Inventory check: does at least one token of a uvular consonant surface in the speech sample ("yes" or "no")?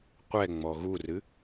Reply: yes